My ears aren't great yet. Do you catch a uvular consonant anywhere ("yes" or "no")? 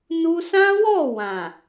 no